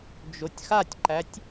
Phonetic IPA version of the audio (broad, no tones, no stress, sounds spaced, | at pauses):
d͡ʒ o tʲ x a tʲ ǃ æ tʲ